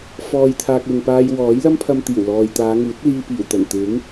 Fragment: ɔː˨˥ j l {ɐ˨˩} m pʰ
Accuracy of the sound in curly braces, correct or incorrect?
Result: incorrect: ɐ˥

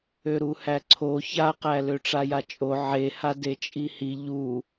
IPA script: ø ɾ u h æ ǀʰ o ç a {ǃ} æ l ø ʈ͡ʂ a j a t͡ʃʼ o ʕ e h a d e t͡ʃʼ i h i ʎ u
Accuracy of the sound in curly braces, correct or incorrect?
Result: incorrect: q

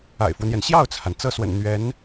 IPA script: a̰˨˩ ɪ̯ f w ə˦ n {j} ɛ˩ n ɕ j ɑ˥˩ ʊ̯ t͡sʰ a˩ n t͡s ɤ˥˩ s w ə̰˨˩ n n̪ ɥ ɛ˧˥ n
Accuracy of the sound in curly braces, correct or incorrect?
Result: correct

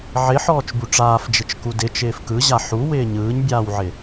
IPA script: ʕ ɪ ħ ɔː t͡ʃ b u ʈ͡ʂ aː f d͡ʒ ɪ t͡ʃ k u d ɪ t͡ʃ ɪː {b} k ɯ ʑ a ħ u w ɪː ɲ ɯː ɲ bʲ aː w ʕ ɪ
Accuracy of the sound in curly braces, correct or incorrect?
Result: incorrect: f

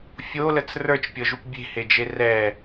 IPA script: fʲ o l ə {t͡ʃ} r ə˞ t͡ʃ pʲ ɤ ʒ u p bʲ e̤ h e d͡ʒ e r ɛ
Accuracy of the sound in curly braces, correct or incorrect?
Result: incorrect: t͡s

